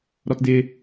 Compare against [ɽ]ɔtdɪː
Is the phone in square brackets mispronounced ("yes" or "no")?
yes